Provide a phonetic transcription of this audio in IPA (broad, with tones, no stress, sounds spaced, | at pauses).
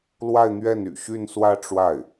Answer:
l w a˥˧ ɪ̯ n̪ ɥ ɛ˥˩ n y̰˨˩ ɕ y˥˧ n s w ä˥˧ ʈ͡ʂ w a˥˩ ɪ̯